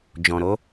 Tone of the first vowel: low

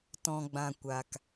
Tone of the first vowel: low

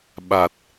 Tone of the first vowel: low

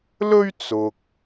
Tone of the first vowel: high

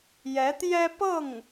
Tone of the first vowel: rising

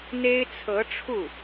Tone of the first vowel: high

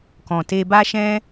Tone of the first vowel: low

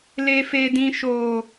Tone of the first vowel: low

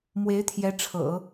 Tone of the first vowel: rising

